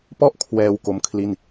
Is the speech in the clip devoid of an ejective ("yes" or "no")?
yes